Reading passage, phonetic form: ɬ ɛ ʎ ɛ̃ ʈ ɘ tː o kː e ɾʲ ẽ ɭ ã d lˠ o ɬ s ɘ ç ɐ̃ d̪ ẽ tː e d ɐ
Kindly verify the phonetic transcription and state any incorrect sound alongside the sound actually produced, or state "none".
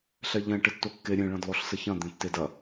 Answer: ã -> ɐ̃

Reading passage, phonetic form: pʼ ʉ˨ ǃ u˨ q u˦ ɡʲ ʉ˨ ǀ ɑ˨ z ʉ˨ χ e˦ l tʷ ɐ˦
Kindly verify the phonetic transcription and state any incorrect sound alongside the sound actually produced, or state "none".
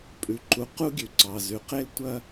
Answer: χ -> q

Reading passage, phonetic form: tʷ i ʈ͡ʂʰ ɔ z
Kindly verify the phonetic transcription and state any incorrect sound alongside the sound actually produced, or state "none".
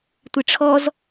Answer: none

